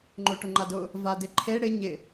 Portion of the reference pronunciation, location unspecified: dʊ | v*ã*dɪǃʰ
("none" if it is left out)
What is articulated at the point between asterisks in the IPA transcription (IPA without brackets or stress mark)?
a